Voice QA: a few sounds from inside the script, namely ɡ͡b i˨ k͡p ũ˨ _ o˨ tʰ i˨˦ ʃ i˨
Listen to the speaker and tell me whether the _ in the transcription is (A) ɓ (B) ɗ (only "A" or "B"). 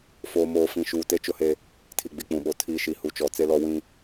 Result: A